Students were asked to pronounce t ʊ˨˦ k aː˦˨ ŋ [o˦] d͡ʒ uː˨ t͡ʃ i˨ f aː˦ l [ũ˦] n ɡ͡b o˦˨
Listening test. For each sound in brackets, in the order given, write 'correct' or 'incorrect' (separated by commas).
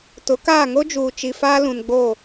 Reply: correct, incorrect